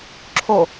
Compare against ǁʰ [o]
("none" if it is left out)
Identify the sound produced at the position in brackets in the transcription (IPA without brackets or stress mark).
o